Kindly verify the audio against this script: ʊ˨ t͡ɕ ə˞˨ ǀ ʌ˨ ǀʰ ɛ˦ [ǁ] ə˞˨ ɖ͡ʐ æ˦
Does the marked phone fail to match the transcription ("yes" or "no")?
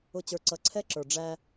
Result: no